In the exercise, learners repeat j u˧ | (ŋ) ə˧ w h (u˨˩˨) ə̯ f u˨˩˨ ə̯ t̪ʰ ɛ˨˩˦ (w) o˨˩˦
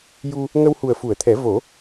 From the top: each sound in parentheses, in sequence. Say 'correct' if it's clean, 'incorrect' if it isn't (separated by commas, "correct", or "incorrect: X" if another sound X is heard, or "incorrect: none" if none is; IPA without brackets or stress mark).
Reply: correct, incorrect: u˨˩, incorrect: v